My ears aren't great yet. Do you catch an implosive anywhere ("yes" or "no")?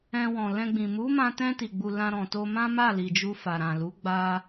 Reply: no